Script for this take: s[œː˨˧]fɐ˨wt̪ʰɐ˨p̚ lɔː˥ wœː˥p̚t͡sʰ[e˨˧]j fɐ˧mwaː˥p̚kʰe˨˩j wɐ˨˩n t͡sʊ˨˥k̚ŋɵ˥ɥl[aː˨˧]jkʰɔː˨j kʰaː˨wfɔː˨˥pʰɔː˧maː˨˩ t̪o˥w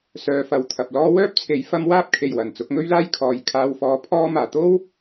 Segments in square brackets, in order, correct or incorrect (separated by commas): correct, incorrect, incorrect